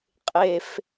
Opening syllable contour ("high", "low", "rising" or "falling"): high